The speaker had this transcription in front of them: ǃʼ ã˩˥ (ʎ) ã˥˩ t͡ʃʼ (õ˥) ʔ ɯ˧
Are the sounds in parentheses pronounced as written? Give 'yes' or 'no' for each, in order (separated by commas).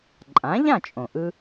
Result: yes, no